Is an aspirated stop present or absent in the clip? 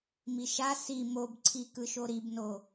present